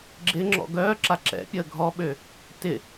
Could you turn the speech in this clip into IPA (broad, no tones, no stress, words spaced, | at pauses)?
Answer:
ɡ͡ǁɪ ŋ͡ǁɔ̰ɡœːǁa ǁɛ̰pʲəː ɡʱɔɓø | tɪ